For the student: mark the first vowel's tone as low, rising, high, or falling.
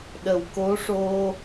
low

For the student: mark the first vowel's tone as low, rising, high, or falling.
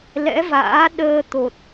rising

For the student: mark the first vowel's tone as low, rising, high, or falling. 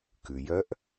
low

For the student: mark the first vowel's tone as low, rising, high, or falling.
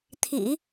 low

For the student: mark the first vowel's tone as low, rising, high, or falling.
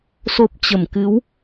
low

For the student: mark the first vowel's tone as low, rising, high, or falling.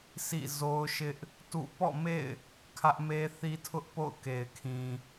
falling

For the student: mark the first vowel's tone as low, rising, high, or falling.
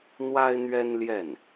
high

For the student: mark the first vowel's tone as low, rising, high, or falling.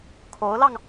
rising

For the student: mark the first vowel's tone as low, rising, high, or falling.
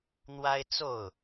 high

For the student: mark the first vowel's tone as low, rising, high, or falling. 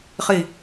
low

